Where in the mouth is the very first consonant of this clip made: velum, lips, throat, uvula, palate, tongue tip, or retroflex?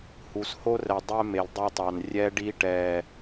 throat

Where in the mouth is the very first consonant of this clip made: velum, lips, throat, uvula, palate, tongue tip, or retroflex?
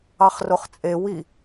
uvula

